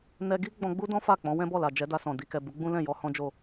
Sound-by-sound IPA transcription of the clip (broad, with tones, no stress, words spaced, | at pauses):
nɛ˧ɡi˦ ɡ͡bɔ̃˧ɡ͡bu˦dɔ̃˦ fa˦˨k͡pɔ̃˨˦ wɛ̃˦bɔ˦˨la˨d͡ʒɛ˨˦ da˧sɔ̃˨ di˨kɛ˨ bu˨˦ ɡ͡bũ˦lɛ̃˦˨ jɔ˧hɔ̃˦d͡ʒo˦˨